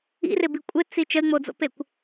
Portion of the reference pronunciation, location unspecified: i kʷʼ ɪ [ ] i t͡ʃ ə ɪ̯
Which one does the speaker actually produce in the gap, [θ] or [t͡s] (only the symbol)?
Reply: t͡s